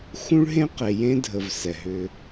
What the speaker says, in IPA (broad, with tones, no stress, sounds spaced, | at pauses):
x ũ˥ ɭ ɦ ẽ˥ q e˨ j ẽ˥ dʱ ə˨ v s ɛ˩ ɦ ʏ˨